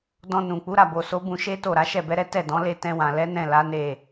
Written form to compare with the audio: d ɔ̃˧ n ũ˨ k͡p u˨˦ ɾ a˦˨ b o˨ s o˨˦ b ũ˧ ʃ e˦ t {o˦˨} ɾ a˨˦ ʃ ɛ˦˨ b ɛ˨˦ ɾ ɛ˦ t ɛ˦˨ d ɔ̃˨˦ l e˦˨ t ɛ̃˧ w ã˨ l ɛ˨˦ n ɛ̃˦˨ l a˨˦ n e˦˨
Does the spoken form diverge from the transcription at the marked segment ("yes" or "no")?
no